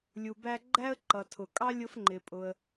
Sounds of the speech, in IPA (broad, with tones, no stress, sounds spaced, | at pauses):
lʲ u˩ b æ˥ ɡ͡ǃ æ˥ ə̯ ǃ ʌ˩ tʰ ʊ˩ kʼ ɑ˥ lʲ ʊ˥ f ŋ͡ǃ ɪ˩ pʼ ʊ˩ ə̯